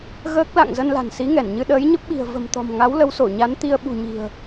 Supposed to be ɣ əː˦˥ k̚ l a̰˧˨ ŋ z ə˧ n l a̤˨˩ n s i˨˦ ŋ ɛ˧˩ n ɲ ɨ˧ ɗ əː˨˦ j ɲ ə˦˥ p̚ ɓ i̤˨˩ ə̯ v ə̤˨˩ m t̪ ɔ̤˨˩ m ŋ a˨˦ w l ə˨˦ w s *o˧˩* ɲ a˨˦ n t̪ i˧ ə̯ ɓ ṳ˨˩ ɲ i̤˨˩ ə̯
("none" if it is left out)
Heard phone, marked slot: o˧˩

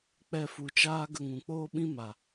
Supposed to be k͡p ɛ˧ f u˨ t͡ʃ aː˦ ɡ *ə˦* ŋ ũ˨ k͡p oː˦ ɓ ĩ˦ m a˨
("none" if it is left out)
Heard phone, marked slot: ə˧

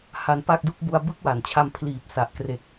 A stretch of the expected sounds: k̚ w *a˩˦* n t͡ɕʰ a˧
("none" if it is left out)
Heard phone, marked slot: a˩˦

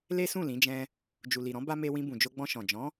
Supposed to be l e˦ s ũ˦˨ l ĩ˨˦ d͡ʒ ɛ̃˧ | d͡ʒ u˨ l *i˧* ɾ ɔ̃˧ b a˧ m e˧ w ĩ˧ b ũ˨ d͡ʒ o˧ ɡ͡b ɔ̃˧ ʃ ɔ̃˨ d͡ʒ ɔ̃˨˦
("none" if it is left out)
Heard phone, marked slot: i˨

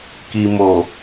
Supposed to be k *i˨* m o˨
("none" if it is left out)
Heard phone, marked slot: i˨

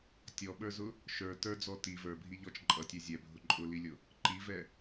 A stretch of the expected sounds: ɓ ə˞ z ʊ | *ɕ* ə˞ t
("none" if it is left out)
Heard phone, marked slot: ʃ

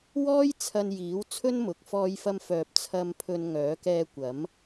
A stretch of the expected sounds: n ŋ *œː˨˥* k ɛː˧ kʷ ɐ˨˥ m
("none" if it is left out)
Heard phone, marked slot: œː˨˥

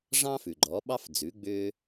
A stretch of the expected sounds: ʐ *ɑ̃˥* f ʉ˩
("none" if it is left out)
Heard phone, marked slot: ɑ̃˥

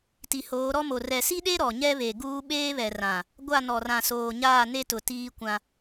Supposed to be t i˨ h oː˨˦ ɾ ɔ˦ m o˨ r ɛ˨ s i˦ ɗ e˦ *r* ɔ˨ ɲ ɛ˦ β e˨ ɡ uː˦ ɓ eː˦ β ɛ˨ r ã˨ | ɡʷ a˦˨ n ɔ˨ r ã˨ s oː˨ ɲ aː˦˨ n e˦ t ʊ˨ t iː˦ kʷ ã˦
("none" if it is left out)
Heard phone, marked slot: ɾ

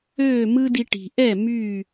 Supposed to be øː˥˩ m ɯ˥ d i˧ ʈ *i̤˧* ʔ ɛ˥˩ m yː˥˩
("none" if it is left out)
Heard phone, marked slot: i̤˩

